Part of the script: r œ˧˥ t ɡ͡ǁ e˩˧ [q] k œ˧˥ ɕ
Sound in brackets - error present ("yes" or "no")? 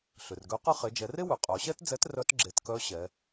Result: yes